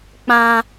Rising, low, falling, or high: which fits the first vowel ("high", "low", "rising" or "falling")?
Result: high